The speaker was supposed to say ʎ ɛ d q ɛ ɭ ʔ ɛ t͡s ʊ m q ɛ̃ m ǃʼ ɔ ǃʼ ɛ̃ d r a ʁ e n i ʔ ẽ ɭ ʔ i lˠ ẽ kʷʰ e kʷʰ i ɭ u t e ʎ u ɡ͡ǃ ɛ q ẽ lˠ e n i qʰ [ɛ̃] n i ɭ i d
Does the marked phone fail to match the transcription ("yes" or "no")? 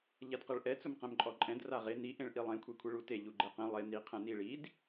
no